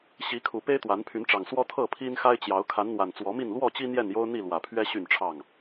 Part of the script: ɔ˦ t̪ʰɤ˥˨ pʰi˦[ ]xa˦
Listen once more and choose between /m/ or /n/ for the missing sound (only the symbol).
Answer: n